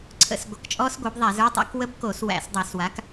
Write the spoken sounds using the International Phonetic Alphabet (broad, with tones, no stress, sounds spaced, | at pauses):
ǀʰ ə̰˦˨ s ɡʷ ə˧˩˧ k t͡ʃʼ ɔ˦˥ s ɡʷ ə˞˩˥ b ðˤ æ˧˩˧ z ə˞˧˥˧ tˤ æ̰˦˥ k w ə˧˥˧ b k o˧˩˧ s w æ̰˧˩˧ s dˤ æ˧˩˧ s w a˩˥ k